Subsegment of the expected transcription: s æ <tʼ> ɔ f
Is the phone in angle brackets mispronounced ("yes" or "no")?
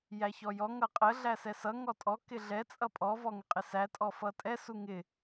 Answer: no